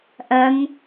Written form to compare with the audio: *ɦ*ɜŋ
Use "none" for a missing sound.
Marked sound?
ʔ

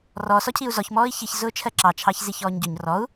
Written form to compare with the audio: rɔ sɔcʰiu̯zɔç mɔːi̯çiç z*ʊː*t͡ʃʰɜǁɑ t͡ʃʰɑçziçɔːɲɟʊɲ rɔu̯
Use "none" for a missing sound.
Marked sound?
ʊː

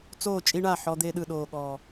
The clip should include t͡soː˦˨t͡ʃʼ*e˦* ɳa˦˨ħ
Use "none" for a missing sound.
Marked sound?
i˦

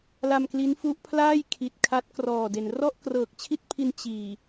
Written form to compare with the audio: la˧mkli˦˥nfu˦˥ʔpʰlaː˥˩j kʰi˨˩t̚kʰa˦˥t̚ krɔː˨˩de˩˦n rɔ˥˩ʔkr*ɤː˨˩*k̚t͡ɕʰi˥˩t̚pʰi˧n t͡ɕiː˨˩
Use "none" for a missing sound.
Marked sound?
ɤː˨˩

